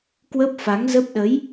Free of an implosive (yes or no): no